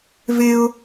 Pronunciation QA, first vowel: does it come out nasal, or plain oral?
oral